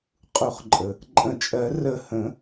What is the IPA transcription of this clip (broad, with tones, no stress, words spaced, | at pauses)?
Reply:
qʼu˨˩˦χǃʼə˩ | ǃʼə̃˨˩˦t͡ʃʼɜ˨˩˦rə˧˩ hə̃˨˩˦